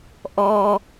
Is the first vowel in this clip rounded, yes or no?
yes